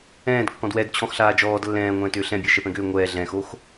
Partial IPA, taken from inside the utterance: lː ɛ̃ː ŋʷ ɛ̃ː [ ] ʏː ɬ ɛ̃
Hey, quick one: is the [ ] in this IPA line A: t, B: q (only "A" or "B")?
A